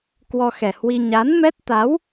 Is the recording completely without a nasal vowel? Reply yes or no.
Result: yes